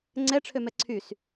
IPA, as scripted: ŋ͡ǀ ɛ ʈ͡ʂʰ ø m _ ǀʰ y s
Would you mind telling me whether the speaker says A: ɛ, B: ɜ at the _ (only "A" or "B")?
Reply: A